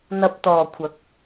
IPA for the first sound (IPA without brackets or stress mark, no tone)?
n̪